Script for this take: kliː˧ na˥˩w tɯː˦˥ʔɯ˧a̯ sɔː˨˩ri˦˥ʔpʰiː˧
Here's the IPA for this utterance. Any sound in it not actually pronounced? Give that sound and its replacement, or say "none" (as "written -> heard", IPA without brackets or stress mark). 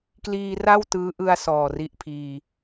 n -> r